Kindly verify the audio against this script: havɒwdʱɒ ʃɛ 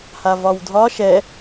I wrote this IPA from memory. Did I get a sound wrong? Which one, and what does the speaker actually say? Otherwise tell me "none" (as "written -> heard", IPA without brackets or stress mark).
none